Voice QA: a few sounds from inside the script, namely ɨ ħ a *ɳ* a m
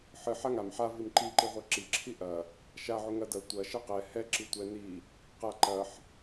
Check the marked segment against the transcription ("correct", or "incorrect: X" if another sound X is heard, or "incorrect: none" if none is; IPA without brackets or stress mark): incorrect: ŋ